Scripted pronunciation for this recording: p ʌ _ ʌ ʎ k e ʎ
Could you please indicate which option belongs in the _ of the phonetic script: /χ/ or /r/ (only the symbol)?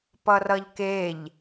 r